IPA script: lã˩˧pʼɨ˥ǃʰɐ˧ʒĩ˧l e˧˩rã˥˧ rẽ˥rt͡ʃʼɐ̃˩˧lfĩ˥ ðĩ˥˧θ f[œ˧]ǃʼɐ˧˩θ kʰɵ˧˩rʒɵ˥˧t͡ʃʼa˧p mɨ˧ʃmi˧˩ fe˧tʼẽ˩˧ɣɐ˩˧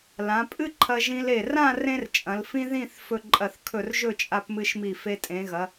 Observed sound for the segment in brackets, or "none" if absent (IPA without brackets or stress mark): ɵ˧